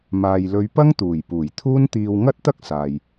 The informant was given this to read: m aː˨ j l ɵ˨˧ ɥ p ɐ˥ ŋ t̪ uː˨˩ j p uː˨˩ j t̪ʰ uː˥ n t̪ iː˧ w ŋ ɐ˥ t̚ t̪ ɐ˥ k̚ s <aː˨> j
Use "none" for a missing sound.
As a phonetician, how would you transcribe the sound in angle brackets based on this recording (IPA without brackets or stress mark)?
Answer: aː˨